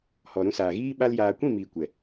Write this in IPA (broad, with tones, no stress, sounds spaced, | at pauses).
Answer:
h ɔ˨ ɾ ũ˧ s aː˨ ɣ iː˦ ɓ a˦ l j aː˧ kʷ ĩ˦˨ m iː˨ kʷ ɛ˨